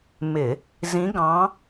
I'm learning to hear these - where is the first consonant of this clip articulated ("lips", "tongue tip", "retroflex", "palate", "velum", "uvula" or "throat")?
lips